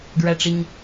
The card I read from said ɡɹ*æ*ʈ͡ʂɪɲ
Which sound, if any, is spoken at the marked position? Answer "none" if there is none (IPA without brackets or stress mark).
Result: æ